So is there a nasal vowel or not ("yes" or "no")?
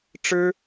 no